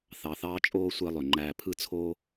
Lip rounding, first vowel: unrounded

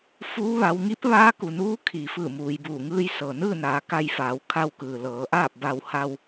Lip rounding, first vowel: rounded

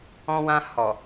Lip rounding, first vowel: rounded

